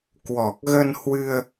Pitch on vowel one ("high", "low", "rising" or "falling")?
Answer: low